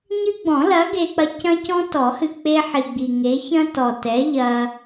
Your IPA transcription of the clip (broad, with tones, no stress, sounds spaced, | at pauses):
ɲ ɨ˦ ɡ͡b ɔ̃˨˩˦ l ɐ˨˥ ɡ e˦ k͡p ɐ˦ c ɐ̃˦ c ɔ̃˦ t ɔ˨˩˦ h ɨ˨ k͡p e˦ ħ i˨ ɡ͡b i˨ ŋ e˨˥ ç ɐ̃˦ t ɔ˨ t ɛ˨˥ ʎ ɐ˦